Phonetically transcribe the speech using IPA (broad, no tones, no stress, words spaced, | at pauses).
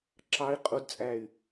ǁɑi̯ qʼudt͡sʼæy̯